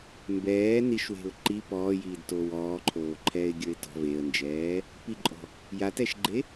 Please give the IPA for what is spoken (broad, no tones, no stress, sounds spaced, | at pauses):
m b ɛː n i ʃ w e̤ ʊ̯ ǃ i p ɔː j iː d t oː w ɔː ǃʰ oː ǃʰ ɛː ɪ̯ ɡʲ ə˞ ɪ̯ t ɔ̤ v e ə̯ n d͡ʒ ɛː | p i ǃʼ ɔ̤ | j a t ɛ ʃ ɡ͡ǃ e